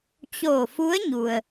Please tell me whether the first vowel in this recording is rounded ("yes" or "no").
yes